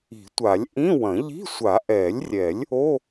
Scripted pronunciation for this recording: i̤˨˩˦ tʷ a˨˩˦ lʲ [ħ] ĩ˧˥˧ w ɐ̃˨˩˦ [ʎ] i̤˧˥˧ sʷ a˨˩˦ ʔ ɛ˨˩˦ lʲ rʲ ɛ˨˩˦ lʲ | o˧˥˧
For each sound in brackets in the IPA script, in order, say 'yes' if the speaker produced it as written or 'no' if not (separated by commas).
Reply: no, yes